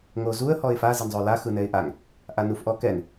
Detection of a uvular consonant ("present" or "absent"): absent